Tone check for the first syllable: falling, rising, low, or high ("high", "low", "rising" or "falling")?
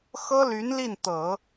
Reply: high